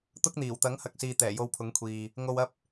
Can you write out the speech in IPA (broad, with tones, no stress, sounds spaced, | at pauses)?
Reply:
t̪ ʊ˥ k̚ n̪ iː˨˩ w t̪ ɐ˨˥ ŋ h ɐ˨ k̚ s iː˨ t̪ ɛː˨˩ j o˧ w pʰ ʊ˨˥ ŋ kʷʰ iː˨ | ŋ o˨ w ɐ˧ p̚